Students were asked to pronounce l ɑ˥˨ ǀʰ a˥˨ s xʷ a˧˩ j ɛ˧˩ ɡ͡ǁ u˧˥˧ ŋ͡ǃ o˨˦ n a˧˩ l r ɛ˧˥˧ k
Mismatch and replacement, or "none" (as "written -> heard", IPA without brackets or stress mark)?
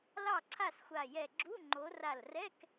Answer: n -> r